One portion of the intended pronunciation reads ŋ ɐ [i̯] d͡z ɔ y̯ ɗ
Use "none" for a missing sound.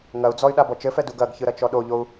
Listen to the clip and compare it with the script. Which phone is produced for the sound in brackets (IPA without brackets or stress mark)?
u̯